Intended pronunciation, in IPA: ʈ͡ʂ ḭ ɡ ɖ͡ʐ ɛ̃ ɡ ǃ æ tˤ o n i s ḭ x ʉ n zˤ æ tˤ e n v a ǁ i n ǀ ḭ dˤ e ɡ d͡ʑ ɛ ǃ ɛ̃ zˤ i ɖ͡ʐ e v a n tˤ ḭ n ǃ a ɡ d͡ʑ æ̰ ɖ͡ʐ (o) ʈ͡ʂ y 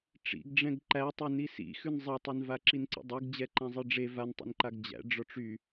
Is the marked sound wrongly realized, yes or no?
yes